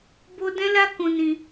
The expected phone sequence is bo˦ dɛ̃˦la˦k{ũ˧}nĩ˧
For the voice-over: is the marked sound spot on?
yes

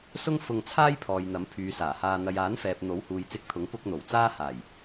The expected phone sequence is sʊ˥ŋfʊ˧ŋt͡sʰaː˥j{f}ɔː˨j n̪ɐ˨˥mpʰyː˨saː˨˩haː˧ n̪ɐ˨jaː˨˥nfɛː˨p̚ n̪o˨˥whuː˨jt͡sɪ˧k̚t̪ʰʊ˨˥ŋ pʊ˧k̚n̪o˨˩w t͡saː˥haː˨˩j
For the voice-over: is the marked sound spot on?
no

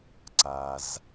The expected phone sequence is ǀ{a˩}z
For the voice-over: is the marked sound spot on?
yes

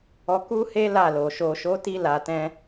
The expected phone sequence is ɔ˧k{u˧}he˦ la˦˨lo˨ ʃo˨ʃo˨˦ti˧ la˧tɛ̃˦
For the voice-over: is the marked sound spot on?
no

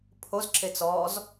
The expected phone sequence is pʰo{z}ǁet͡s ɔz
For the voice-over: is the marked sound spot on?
yes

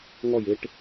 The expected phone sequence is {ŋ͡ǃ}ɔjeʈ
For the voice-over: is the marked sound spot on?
no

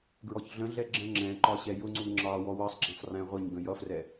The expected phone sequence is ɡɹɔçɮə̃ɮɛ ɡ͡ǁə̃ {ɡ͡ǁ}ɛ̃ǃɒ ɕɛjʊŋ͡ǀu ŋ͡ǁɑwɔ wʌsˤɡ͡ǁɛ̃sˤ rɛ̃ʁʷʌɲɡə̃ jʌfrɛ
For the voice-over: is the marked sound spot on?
no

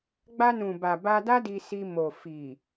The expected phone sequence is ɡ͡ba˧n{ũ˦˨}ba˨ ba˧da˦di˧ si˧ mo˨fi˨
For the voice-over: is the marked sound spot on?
no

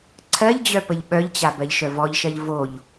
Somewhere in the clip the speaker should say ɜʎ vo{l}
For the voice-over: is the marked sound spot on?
no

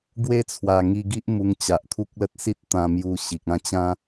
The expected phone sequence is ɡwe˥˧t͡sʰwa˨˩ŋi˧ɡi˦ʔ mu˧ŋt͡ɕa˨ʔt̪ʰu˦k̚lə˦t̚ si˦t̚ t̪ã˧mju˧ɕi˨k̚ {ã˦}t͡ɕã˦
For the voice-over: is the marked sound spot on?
no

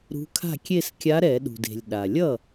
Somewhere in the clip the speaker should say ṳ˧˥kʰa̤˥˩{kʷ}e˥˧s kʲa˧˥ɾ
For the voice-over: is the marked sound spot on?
no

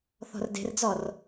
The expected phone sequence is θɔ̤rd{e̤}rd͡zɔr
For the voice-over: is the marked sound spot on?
yes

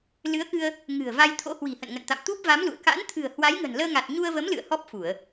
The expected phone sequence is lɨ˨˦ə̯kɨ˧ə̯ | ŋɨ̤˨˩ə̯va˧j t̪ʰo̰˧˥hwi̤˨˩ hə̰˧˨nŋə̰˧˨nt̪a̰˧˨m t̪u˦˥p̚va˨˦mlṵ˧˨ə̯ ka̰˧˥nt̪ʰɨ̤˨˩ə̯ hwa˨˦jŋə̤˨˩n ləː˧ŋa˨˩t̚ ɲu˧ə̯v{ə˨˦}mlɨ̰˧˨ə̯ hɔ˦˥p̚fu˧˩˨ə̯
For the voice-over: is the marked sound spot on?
yes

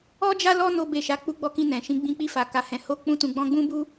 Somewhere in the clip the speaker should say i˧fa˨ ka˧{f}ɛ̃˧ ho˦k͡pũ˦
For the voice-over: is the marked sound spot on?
no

